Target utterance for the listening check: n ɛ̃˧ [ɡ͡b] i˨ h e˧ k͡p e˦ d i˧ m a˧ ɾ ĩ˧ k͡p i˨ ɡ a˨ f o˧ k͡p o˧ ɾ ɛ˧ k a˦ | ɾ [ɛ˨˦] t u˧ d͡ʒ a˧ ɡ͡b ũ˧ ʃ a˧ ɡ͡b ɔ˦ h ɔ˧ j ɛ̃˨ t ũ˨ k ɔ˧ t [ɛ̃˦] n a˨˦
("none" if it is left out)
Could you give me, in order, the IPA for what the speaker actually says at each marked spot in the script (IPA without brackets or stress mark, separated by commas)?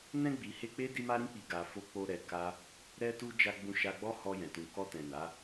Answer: ɡ͡b, ɛ˧, ɛ̃˨